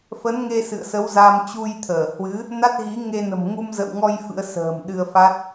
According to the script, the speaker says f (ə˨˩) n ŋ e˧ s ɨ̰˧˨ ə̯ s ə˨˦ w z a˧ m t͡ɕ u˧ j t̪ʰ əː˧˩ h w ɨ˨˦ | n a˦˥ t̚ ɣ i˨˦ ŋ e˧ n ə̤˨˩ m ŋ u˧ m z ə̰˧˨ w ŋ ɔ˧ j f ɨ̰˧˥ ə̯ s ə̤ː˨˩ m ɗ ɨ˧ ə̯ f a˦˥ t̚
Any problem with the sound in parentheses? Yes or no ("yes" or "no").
yes